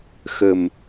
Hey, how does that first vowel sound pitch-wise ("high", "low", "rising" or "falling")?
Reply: low